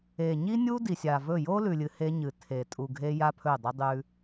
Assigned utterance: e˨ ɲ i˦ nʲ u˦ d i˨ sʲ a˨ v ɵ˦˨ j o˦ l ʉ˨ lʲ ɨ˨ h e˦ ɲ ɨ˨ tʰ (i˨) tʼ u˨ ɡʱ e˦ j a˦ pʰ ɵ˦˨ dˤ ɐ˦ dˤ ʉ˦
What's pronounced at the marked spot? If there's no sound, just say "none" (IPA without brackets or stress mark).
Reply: e˨